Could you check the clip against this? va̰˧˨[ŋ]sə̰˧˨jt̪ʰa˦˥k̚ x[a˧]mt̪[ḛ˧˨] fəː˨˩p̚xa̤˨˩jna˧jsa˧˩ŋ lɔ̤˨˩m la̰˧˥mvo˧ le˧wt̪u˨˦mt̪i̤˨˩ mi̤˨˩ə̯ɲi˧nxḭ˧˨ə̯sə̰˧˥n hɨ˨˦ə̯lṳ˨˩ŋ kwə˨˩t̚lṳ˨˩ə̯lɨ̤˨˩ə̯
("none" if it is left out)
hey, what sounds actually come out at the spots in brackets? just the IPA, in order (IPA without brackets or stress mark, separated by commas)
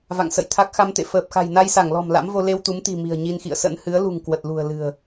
ŋ, a˧, ḛ˧˨